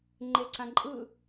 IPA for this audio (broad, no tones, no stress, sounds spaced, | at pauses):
ŋ͡ǃ e ǀ ã ǃʼ ɯ